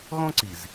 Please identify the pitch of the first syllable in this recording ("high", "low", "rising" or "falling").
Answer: high